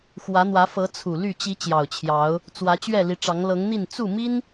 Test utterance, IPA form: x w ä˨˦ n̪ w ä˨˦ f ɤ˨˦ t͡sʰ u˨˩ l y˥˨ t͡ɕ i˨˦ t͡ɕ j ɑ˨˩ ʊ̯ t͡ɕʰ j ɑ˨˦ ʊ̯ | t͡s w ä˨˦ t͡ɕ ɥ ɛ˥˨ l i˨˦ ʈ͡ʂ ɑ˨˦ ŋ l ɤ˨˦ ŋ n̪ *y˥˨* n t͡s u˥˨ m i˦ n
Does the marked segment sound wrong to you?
yes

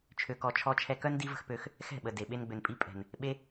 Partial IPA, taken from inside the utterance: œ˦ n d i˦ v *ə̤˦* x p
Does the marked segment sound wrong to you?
no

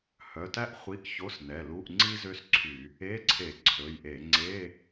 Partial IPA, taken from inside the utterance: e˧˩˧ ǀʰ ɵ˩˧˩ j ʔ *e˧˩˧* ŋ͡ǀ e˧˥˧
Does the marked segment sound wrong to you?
no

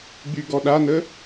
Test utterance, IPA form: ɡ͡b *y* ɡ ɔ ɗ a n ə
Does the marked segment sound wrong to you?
no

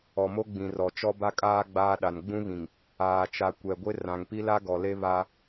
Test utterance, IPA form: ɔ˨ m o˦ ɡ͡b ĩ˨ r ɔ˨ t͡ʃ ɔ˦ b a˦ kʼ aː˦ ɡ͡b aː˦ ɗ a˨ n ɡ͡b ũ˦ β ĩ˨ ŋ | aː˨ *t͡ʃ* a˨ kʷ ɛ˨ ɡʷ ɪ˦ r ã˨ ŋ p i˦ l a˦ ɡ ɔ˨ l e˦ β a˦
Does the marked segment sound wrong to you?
no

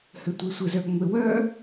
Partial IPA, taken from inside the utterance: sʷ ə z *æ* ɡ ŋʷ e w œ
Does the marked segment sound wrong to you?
yes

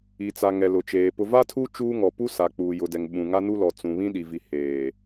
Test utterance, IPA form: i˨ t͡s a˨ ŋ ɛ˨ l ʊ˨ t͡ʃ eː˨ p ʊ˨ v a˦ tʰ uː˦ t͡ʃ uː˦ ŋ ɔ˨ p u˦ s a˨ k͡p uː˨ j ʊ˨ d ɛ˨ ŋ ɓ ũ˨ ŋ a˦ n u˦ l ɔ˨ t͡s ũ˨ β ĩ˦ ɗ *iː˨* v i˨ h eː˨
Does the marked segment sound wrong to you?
yes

